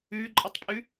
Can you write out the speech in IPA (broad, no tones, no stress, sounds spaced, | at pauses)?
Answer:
ʉ ǃʼ ʌ tˤ pʼ ʉ